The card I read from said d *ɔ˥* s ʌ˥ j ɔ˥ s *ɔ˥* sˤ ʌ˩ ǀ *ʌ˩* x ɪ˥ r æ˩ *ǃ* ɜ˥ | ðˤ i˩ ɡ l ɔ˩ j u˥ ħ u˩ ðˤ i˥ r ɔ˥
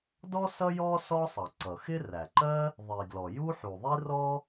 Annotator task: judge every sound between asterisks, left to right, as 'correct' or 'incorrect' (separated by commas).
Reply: correct, correct, correct, correct